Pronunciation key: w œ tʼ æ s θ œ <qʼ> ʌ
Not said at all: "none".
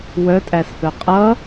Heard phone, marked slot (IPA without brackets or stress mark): qʼ